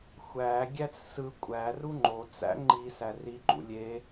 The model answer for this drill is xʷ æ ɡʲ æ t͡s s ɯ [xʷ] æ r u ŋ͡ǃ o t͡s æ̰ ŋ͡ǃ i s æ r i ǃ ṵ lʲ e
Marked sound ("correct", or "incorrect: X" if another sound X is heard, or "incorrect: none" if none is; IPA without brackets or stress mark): incorrect: kʷʼ